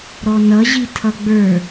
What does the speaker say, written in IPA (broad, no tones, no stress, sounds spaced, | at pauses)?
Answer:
ɾ ɔ n ʌ ʑ i tʰ ʌ ɡ͡b ə˞